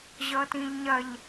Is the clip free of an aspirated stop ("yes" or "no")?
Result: yes